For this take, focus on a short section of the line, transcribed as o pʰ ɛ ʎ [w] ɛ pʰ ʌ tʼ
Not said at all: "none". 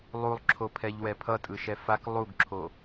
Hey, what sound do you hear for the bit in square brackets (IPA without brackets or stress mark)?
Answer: w